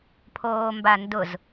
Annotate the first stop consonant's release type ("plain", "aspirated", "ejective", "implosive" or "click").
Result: aspirated